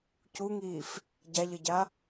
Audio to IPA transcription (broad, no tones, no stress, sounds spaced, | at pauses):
c u ŋ iː f | ɟ a ʎ ʌ ɟ a